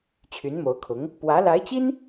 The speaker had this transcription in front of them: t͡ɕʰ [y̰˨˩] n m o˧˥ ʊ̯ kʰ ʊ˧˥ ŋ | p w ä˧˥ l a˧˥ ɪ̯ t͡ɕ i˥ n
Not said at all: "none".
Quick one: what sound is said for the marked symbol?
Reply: y˧˥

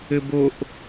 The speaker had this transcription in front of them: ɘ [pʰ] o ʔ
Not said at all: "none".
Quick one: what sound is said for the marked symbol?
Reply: b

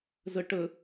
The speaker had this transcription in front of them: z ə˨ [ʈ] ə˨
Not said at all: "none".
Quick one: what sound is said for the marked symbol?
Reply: ʈ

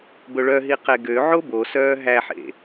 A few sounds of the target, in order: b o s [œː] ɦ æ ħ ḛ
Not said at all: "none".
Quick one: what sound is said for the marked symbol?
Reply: œː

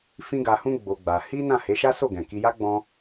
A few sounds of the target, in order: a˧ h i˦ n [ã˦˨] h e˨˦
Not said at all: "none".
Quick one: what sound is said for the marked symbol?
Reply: ã˦˨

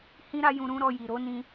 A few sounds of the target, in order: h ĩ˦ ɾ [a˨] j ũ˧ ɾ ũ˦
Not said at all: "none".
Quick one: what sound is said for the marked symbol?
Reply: a˦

